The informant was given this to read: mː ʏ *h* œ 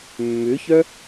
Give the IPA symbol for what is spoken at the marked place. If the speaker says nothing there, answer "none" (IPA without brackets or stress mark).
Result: ç